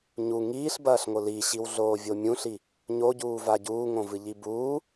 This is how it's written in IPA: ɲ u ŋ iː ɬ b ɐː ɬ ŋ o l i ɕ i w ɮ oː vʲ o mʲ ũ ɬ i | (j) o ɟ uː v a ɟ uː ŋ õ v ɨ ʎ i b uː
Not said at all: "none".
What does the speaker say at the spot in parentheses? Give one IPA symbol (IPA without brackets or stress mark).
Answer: ɲ